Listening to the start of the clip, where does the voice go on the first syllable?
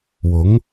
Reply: rising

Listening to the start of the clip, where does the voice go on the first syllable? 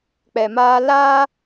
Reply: low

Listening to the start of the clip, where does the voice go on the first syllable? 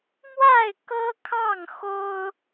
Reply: falling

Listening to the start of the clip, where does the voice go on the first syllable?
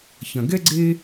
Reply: low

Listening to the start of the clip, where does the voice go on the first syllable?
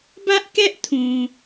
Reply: high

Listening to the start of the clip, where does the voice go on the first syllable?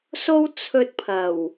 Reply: high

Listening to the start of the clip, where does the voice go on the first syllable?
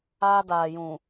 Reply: high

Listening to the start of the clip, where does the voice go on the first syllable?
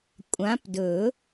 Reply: rising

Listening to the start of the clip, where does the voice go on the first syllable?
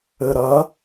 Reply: low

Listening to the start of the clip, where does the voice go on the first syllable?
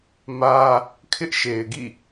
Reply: high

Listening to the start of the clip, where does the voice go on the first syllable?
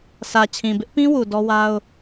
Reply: low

